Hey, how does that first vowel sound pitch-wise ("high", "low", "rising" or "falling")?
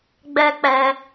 high